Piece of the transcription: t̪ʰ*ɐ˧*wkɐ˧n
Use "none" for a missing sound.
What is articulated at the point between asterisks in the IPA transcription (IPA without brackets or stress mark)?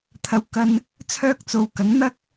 ɐ˧